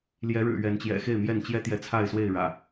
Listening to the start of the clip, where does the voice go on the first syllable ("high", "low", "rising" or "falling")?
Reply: rising